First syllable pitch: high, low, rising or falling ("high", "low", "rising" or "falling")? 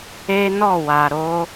high